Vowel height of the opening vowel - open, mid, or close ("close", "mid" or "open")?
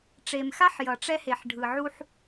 mid